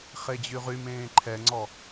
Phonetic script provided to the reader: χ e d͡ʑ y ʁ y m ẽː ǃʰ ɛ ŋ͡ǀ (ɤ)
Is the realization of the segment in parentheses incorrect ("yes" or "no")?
yes